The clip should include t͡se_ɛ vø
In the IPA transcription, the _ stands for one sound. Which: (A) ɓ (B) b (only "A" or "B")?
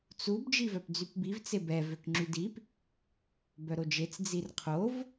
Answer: B